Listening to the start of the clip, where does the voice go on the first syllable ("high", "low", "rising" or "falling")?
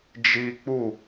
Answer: high